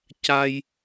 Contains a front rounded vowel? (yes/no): no